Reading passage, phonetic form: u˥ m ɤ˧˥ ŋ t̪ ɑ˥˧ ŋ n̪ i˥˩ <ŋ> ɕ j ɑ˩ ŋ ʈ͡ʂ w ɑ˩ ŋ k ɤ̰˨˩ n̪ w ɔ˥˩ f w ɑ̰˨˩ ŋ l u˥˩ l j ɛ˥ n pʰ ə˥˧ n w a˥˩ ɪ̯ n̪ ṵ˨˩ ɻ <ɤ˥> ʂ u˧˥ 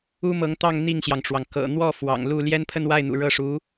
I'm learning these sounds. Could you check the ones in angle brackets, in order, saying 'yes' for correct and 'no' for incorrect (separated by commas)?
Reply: yes, no